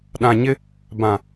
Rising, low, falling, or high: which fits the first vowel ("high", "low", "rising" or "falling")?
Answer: low